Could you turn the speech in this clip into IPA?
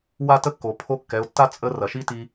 w a˥ t ə˥ kː o˩ pʰ o˧˥ kː ɛ˩˧ ʊ̯ tː a˥ t͡sʼ ə˧˥ r ɐ˩ ʃ i˥ t i˧

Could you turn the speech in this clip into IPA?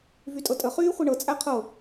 v y tʼ ɤ tʼ ə χ yː χʷ i ɳ ɤ t͡sʼ æ qʰ ɤ

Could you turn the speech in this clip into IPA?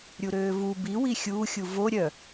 ɾʲ u ɾ øː v u b i w i xʲ uː xʲ u v o ɾʲ œ

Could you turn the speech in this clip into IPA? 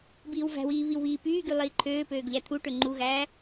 b iː w v æ̤ w iː β i w β iː p yː ɡ y lˠ iː ǃʰ øː p øː ɡ ʎ æ t̪ʰ u ʈ ø ŋ͡ǃ u ɣ æː

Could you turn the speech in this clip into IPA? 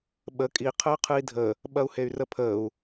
ɓ ə kʼ i qʰ əː qʰ ɨ i̯ dʱ ə | ɓ ɐ u̯ h e y̯ r ə pʰ əː u̯

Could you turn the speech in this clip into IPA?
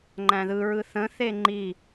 ŋ͡ǃ æ̃ ð ɯ ɹ ɯ θ ə̃ θ e ŋ͡ǃ i

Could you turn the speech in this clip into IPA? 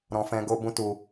ɾ ɔ̃˧ f ɛ̃˧ ɡ o˧ b ũ˦ t u˧

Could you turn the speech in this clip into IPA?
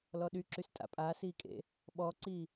l ɔ ɗ y ǁ y s tʼ a̰ pʼ aː s iː kʼ ḛ | ɓ ɔ ǀ iː

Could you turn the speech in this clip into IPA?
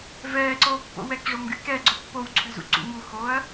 v ɛː ǀ oː pː o̰ w ɛ k ʐ o m ɡ y k ɛ ɡ͡ǀ o pː o w ǀʰ y z ṵ ǀ ṵ ŋ u x oː ɐ̯

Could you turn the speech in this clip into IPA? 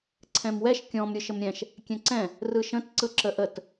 ǀʰ ɛ̃ m w ɛ ʃ kʲ ɔ̃ m ɾʲ ɯ ʃ ə m ɾʲ ɛ̃ ʃ | kʲ ɛ̃ ǀ ɛ̃ | r ɯ ʃ ə̃ t ǀ ɯ ǁ ə ʔ ə t

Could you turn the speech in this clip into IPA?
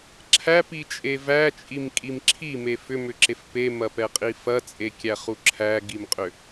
ǁʰ æ p i t͡ʃʼ e v æ t͡ʃʼ i m kʼ i m ǁʰ i m e f ʏ m ʏ ǁ e f p e m ɐ p ɛ qʼ i f ɐ t͡sʼ e kʲ æ χ u ǁʰ æ ɡ i m qʼ ʏ

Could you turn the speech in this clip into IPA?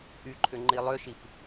ʔ y ǃʰ ʏ ŋ͡ǃ i lˠ ʏ ʃ i p

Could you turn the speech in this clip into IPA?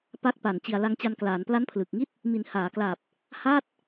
p a˦˥ k̚ p a˨˩ n t͡ɕ i˨˩ a̯ l a˧ ŋ t͡ɕ a˧ n k l aː˩˦ n p l a˦˥ n pʰ l ɯ˨˩ k̚ ŋ i˥˩ t̚ | m i˩˦ n h aː˩˦ k l aː˨˩ p̚ | h aː˥˩ t̚

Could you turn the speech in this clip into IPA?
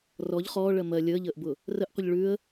r ɔ ʎ χ ɔː ɭ ɜ m ɜ lʲ əː ʎ əː ʔ b ʊ | r ə ʔ qʷ ə ʎ ɭ ʉ ə̯

